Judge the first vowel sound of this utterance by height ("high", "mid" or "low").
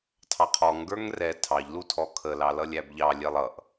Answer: low